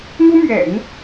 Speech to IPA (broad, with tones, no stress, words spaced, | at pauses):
n̪u˥mɥɛ̰˨˩˦n